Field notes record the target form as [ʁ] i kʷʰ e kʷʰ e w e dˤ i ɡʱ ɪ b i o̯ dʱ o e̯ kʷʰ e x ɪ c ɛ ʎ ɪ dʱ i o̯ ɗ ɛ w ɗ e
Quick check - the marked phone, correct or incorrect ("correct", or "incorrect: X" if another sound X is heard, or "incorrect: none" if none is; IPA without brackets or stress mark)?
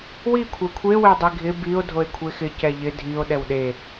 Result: incorrect: w